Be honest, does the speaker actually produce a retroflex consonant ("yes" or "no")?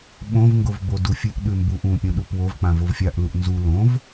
no